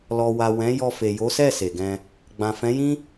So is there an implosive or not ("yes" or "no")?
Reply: no